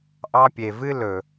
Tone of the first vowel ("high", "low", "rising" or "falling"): high